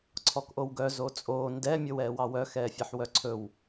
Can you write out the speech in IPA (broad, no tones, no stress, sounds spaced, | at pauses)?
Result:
ǀʰ ɔ k ʔ o w ɡ œ z o t͡sʼ oː n d ɛ mʲ o w ɛː w ɑ w œ x ɛː fʲ ɛ ħ w œ ǀʰ ɵ w